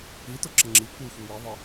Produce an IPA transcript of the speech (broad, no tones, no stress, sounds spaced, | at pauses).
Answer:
i t ʊ ǁ ə ŋ͡ǁ i kʷ i xʷ i w i ðˤ ə